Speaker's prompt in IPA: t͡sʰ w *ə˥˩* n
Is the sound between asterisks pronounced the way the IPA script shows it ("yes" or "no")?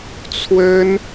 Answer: no